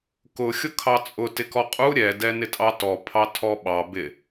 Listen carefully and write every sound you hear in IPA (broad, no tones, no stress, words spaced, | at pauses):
kʊ xʲʊkʰɑt͡sʼʊ tɪkɔqʼu ɾʲɛ dɛnɪtʼɑtɔ pʰɑtʰɔɓɑ bɪ